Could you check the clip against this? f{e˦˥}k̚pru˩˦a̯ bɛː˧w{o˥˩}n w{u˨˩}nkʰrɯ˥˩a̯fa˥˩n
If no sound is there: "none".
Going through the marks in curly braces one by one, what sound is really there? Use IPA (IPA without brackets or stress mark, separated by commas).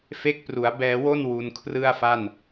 e˦˥, o˥˩, u˧